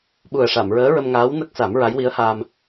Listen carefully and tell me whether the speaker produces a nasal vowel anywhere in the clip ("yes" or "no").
no